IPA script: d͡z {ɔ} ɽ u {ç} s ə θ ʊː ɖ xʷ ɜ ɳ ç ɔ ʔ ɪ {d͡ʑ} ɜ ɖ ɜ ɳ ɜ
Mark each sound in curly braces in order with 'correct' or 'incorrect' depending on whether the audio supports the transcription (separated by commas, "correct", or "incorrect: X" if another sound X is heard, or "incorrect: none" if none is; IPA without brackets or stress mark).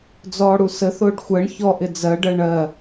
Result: incorrect: ɔː, incorrect: none, incorrect: d͡z